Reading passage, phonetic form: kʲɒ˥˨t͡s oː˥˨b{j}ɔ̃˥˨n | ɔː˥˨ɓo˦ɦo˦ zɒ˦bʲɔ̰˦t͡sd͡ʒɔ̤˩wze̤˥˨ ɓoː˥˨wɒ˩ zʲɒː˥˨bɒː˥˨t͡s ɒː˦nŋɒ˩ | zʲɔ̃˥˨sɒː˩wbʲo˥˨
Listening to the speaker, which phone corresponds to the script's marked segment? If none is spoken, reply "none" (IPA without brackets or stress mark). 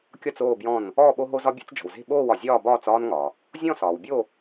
j